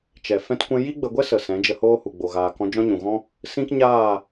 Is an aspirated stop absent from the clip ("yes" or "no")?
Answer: yes